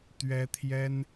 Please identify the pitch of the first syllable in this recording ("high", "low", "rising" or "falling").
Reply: high